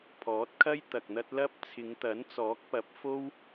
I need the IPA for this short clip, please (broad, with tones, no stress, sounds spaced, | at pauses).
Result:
pʰ ɔː˨˥ t̚ kʰ ɐ˥ j t̪ ɐ˧ k̚ n̪ ɐ˥ t̚ l ɐ˥ p̚ t͡sʰ ɪ˨˧ ŋ t̪ ɐ˨˥ n t͡s ɔː˨˥ k̚ p ɐ˨˥ p̚ f o˥ w